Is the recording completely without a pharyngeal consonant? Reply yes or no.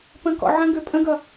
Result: no